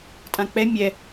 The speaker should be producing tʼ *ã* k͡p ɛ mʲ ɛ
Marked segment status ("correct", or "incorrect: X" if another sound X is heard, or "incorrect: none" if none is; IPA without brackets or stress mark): correct